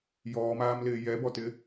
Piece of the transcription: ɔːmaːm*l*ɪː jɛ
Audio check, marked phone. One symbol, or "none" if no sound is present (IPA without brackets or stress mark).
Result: l